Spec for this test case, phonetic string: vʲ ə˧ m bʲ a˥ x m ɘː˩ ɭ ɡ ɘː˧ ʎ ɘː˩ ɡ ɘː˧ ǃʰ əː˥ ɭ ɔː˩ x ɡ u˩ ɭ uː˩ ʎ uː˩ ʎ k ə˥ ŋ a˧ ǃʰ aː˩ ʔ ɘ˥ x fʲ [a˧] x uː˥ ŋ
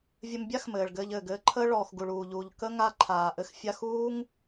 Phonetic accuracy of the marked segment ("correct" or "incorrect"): correct